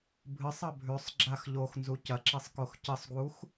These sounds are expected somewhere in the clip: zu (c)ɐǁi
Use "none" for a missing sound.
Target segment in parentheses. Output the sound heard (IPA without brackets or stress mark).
c